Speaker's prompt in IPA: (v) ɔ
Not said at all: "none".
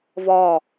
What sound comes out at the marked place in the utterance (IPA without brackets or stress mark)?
v